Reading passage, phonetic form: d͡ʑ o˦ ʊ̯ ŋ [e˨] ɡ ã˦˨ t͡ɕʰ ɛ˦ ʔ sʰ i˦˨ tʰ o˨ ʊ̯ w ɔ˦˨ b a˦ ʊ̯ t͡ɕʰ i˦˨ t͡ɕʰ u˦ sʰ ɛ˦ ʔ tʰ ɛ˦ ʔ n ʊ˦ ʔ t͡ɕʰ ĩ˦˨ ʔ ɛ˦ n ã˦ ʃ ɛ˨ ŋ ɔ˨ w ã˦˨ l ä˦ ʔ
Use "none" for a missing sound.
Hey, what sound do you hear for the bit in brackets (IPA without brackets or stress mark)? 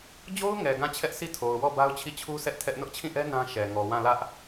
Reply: ɛ˨